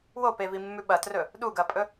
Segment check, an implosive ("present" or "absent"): present